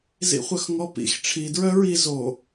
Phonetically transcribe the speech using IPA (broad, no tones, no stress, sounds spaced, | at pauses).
z ḭ χʷ œ x ŋ ɔ p ḭ x ʈ͡ʂʰ i d ɹ œ ɹ i z o